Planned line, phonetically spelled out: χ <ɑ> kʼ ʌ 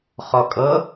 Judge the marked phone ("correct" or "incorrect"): incorrect